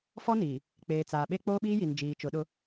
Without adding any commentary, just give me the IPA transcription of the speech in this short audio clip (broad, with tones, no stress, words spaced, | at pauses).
fɔ˦niː˨ | k͡peː˨t͡saː˨ɓe˦ k͡poː˦ɓiː˦ji˨n d͡ʒiː˨t͡ʃʊ˨˦ɗʊ˦